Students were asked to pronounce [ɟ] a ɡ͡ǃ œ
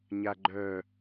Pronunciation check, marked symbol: incorrect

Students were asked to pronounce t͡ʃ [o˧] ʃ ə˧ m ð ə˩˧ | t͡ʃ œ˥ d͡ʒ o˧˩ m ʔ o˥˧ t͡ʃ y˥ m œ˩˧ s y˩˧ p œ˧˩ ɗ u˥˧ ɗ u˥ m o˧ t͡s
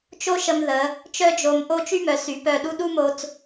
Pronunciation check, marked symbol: incorrect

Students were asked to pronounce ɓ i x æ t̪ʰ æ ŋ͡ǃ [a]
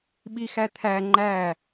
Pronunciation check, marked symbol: incorrect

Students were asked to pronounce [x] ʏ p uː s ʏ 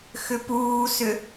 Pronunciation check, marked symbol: correct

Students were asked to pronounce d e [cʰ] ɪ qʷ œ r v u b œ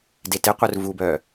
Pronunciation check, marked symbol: incorrect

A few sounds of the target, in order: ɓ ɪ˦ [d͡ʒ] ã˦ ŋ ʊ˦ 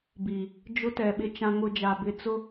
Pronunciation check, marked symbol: incorrect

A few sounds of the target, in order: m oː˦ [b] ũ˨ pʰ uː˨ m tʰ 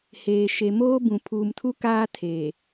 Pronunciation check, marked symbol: correct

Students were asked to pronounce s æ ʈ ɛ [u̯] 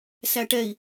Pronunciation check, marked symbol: incorrect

